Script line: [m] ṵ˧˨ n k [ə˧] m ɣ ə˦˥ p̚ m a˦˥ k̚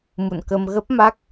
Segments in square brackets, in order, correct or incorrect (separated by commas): correct, correct